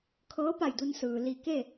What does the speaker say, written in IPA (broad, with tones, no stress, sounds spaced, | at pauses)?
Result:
kʰ ɤː˧˥ p a˧˩ j d u˧ n s ɯː˩ l i˧˩ k e˥˨